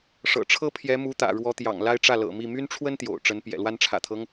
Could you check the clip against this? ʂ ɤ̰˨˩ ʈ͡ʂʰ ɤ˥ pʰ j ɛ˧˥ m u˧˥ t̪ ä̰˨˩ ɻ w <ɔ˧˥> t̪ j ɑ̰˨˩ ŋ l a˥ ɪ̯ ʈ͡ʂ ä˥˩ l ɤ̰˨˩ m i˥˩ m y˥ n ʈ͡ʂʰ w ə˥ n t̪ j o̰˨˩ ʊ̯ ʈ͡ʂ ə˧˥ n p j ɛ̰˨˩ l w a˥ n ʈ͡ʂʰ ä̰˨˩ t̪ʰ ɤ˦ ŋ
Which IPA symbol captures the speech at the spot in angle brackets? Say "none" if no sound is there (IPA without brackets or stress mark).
ɔ˧˥